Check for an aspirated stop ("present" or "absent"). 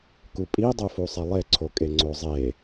present